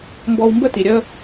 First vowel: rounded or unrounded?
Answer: rounded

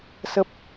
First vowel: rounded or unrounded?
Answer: unrounded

